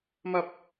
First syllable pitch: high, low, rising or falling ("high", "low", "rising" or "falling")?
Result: high